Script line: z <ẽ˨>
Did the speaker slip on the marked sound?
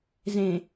no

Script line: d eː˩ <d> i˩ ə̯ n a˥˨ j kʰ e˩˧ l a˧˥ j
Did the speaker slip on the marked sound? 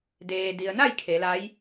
no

